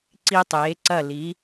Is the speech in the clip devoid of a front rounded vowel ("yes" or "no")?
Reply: yes